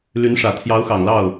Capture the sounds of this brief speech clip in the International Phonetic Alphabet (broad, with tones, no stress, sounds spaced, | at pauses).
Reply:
l y˧˥ n ʂ ä˨˩ t̪ʰ j ɑ˧˥ ʊ̯ x ɑ˨˩ ŋ l ɑ˥˩ ʊ̯